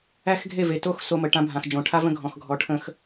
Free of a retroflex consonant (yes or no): no